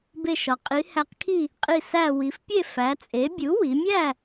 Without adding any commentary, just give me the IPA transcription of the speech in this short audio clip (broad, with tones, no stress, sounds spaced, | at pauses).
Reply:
b e˧˩ ʃ ɒ˩ qʼ i˩˧ h æ˧˩ q kʰ i˥˨ | qʼ i˧˩ s æ˧˩ w i˩˧ f pʲ e˥˨ f æ˩˥ t͡sʼ e˩˥ bʲ u˩˥ w i˩˧ mʲ æ˥˨